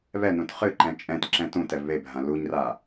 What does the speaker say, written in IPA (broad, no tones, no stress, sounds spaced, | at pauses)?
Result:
β ɛ n ũ t χ ɨ ǃ ɛ̃ t͡ʃʼ ɛ̃ t ǁ ɛ̃ t ũ t ɛ v β e bʱ ã l u ɲ r a